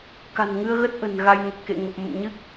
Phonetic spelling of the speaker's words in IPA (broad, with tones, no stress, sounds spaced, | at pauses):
k a̤˨˩ n ŋ ɨ˧ ə̯ ɣ ə˦˥ t̚ ʔ ə̤˨˩ n ɣ a˧ j n ə˨˩ t̚ k ḛ˧˨ ŋ ə˨˩ p̚ m ə̰˧˨ m ɲ ɨ˦˥ k̚